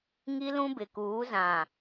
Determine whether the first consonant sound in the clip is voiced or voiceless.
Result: voiced